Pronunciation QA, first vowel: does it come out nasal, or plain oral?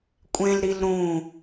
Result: nasal